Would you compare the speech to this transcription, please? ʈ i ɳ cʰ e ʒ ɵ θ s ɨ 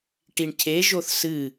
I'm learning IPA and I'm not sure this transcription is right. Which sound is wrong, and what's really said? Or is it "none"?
ɵ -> o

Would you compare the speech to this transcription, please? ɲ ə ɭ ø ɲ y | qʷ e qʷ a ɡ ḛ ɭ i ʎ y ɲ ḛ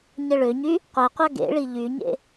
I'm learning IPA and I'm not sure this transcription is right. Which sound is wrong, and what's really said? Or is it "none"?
none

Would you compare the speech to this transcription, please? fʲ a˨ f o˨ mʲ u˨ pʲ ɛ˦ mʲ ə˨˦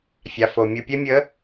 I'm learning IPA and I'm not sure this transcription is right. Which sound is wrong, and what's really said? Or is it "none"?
none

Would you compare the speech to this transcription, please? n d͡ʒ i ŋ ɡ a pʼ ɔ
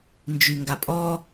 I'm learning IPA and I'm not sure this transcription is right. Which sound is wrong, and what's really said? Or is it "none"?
i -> y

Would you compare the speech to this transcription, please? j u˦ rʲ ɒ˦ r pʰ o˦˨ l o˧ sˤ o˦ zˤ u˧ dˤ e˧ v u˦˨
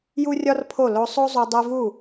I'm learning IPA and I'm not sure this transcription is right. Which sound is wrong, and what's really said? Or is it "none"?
none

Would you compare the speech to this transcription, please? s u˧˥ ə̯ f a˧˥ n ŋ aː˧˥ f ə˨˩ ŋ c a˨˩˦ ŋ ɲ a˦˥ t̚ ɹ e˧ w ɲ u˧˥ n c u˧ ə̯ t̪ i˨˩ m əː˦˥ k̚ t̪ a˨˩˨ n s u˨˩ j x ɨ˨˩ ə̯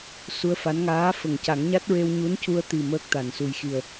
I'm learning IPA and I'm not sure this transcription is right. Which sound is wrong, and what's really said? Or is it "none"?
ɨ˨˩ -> i˨˩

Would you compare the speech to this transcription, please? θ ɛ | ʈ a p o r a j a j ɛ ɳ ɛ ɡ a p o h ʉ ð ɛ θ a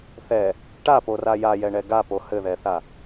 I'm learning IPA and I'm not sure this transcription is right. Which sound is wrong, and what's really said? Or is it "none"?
ʉ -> ɘ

